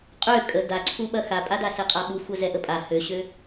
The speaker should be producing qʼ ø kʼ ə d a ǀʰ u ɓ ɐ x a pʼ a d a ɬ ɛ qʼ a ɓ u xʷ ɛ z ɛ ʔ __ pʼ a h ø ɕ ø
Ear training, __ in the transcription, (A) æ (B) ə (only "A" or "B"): B